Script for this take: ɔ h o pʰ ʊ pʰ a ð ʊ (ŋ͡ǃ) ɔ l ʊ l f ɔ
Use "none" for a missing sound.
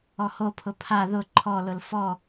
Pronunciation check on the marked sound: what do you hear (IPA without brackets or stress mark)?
ǃʰ